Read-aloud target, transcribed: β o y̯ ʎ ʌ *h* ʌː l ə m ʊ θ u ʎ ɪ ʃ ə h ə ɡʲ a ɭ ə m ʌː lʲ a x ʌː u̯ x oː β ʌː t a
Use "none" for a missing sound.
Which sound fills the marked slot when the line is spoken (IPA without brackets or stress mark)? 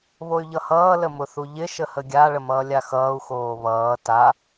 h